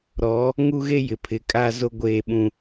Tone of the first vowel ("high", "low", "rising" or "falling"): rising